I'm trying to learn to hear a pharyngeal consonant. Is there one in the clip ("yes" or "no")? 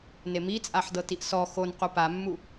yes